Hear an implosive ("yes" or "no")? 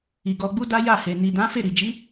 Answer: no